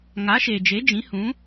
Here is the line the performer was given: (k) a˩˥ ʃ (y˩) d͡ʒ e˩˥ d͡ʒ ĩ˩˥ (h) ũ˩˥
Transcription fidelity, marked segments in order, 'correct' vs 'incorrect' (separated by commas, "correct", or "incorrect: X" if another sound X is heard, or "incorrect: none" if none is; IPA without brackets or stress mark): incorrect: ŋ, incorrect: e˩, correct